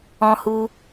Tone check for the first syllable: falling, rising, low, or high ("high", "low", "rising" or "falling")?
high